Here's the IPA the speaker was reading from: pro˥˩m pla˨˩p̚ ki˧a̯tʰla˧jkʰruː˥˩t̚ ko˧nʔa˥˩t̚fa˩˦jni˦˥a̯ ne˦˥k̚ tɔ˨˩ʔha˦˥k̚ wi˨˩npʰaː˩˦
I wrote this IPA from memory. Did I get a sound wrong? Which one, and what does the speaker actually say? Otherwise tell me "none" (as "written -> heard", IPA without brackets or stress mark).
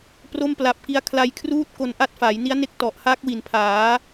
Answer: tʰ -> kʰ